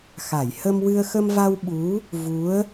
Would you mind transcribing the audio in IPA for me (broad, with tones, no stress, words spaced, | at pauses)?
xa˨˩˨j hə˧mwɨ˧ə̯ xə˧mva˧w ɓu˧˥ | vu˧˥ə̯